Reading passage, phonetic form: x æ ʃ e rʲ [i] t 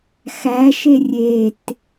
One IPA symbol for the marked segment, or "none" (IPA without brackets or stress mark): e